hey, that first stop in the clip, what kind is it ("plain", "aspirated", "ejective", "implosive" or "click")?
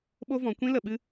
implosive